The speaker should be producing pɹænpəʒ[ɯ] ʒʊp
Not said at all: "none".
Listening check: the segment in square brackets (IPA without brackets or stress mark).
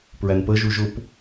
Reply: u